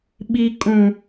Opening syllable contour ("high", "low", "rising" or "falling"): low